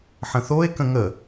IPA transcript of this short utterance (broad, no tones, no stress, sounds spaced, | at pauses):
ħ ə̃ θ o e̯ k ə̃ ŋ ə